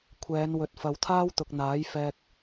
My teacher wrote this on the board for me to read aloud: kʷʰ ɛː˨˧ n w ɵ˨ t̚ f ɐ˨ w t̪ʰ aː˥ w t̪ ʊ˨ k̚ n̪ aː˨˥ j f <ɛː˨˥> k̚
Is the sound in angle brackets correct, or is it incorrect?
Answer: incorrect